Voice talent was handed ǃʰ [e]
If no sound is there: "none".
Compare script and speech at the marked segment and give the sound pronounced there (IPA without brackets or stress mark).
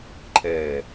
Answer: ɛ